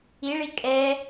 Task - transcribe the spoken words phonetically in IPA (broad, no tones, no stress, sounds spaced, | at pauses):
i ɭ i kʼ ɛ